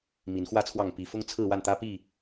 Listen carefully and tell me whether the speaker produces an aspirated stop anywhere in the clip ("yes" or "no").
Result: yes